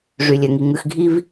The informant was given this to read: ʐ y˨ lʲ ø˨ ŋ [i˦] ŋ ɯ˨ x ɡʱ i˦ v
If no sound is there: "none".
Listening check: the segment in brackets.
i˨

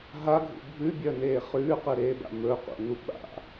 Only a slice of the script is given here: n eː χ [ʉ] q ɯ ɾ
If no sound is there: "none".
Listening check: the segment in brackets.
ʉː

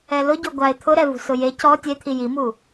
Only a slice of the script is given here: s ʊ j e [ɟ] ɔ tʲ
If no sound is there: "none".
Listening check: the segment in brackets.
c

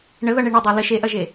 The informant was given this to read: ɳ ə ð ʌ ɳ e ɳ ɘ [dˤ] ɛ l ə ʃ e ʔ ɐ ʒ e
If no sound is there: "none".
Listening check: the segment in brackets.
dˤ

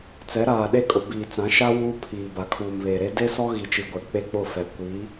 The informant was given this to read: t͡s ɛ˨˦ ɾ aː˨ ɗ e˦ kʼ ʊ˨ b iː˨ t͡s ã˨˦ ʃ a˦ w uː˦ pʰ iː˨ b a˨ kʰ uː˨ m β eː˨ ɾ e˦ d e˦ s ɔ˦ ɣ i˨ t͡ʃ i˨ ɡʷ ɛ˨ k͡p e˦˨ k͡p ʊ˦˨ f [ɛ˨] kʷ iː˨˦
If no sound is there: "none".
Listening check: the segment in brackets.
ɛ˨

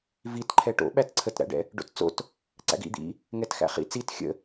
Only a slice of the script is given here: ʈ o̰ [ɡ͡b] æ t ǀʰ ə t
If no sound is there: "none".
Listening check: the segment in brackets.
ɓ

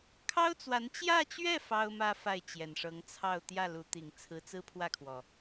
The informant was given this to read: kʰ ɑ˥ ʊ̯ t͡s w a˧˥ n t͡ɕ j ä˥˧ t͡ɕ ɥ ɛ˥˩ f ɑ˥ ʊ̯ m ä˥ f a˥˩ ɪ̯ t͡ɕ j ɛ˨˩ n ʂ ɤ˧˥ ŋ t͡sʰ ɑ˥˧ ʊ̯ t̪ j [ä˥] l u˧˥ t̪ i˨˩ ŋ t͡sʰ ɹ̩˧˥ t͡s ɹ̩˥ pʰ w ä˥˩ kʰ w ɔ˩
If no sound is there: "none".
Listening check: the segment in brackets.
ä˥˩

